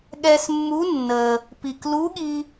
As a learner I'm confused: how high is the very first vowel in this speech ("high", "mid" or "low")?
mid